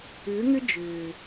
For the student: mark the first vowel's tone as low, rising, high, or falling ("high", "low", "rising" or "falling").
rising